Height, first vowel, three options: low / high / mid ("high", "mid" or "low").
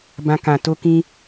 low